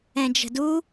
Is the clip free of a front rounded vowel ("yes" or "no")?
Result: yes